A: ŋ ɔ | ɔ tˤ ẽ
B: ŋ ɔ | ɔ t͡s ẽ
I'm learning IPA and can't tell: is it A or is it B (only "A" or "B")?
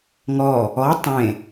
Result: A